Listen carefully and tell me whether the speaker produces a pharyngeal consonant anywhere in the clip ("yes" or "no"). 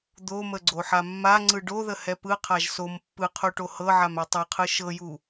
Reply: yes